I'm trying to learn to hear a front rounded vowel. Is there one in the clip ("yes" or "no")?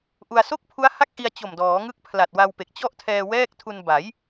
no